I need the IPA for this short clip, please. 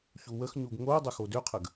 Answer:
çuwəxɲuɡ ŋo dˤəxodøqʰəɡ

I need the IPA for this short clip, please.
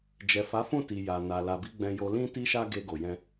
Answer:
d͡ʒɛ˨fa˨˦fũ˦˨ti˨ ja˨na˨ la˨bi˨˦ ɡ͡bɛ̃˧jo˧ lĩ˦ti˦ʃa˦ ɡe˧ ɡo˨jɛ̃˧

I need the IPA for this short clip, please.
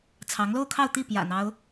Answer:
t͡sʰɑ˧˥ŋlo˥˧ʊ̯kʰɑ˥˧ʊ̯t̪i˥˩ pjä̰˨˩n̪ɑ˦ʊ̯

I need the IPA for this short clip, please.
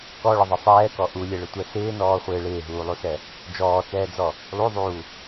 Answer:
kɔɭɪðˤɪ sˤɛːkɔ ʔulʲɛɭɪtʷɛ sɪːnɔːχʷɪː ɭɪːɦuːlˠusɛ | d͡ʒɔːt͡sɛːd͡zɔ | lˠuðˤuː

